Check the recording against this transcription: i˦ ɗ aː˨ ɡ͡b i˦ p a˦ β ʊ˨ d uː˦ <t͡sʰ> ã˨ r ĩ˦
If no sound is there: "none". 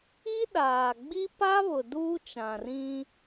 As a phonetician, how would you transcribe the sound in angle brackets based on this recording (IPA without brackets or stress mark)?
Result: t͡ʃ